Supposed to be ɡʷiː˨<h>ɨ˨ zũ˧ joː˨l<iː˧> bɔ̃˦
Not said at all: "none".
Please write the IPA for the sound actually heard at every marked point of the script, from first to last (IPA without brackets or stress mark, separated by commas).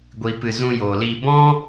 p, iː˧